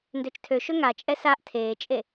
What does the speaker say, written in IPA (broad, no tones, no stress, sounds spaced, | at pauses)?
n d ø t͡ʃ tʰ ø ʃ ø ŋ a t͡ʃʼ ɛ s a ʔ tʰ eː t͡ʃʼ e